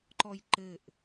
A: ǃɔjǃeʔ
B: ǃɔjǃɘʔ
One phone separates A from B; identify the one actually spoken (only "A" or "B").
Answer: B